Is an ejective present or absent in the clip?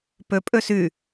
present